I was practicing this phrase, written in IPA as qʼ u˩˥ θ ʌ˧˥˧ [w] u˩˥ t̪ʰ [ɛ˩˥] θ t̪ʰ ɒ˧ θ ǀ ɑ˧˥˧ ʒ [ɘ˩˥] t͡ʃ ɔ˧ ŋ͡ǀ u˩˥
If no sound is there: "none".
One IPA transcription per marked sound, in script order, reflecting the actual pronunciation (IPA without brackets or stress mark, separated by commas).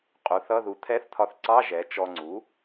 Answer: ð, ɛ˧˥˧, ɛ˩˥